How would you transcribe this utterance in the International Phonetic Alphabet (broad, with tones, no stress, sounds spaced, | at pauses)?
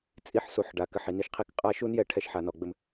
t͡sʼ i˦ ħ s u˨˦ ħ ɖ a˨ k ɘ˧ ħ i˨ n i˧ ʃ qʰ i˧ k qʼ a˧ ʃ u˦ n j ɛ˧ ʈʰ ɛ˦˨ ʃ ħ a˨ n ɔ˨ ɡ͡b ɘ˦ m